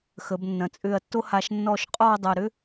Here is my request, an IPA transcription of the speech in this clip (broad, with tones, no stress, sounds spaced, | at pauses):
x ə˩˧ b nː ɐ̃˩˧ t͡sʼ ʏː˧˩ ɐ̯ tː o˥ h a˧ ʃ nː ɔː˧ ʃ qʼ ɔː˥˧ dˤ ɐ˧˩ ɾ ʏ˥